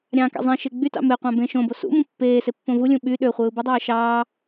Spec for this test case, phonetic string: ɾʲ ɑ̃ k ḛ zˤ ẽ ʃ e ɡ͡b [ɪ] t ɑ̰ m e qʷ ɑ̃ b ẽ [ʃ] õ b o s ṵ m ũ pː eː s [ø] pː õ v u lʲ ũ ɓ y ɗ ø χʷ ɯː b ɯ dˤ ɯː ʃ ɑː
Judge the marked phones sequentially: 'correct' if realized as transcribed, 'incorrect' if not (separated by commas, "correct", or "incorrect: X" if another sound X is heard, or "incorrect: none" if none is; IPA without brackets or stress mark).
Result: incorrect: y, correct, incorrect: e